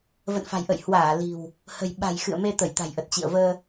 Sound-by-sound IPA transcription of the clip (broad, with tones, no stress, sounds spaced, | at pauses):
v ə̰˧˨ n f a̤˨˩ j ʔ ə̰˧˨ j h w aː˧˩ l i̤˨˩ w | h ə̤˨˩ j ɓ a̤˨˩ j x ɨ̰˧˨ ə̯ m e˧ t̪ ə˧˩ j t̪ a̤˨˩ j ʔ ə˨˩ t̚ t͡ɕ ḭ˧˨ ə̯ v əː˧